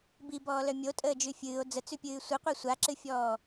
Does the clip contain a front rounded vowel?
yes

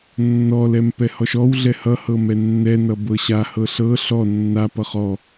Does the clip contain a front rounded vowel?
no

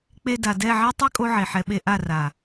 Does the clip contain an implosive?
yes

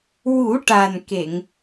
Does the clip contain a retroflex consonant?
yes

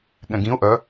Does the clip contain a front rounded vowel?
yes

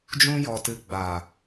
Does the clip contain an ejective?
no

